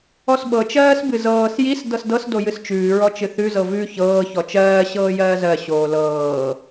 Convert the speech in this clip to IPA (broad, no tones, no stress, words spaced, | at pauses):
ɔsɓɤ t͡ʃɜːsbɨzɤːs jis dɤsdɤs dojɨst͡ʃʉː ɹɔt͡ʃɨθʉ zɤvʉ çɤː çɔt͡ʃɜː ɕɤːjɜːzɜ ɕoːlɤː